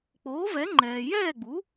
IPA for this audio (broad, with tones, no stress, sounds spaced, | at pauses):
k͡p oː˩˥ v ɛ˩˥ ŋ͡ǃ ɛː˩ j ɛː˥˩ ɡ͡b u˩˥